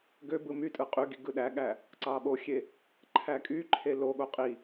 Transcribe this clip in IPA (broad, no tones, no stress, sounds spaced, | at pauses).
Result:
ɡ ø b ɯ m y tʼ ɯ qʼ y ɡ i ɡ ɯ ɗ æ ɠ æ | ǀ ɑ ɓ o xʲ e | ǃʰ æ kʼ y ǃʰ e l o ɠ o qʼ i